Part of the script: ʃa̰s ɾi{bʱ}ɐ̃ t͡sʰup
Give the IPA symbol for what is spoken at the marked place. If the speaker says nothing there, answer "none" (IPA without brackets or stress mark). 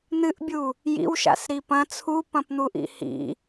p